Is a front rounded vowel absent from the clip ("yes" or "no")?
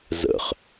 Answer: yes